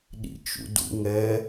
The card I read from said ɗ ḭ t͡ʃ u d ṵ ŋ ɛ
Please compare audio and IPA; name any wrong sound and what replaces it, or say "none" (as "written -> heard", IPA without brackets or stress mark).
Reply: u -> ṵ